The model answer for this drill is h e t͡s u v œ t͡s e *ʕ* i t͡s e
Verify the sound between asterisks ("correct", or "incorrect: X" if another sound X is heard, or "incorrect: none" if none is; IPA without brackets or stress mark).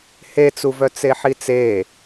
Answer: incorrect: ħ